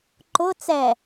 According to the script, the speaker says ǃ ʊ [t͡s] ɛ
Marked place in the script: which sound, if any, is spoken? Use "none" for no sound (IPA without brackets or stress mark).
t͡s